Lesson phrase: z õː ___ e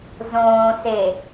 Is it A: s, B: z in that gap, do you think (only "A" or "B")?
A